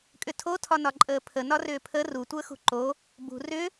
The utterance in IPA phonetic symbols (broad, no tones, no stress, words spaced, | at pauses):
kʼʏtʰotʰɒnɒ ǃʼəːpʰə nɒrʏːpʰə rutʷəː xṳǃo | bṳ rʏ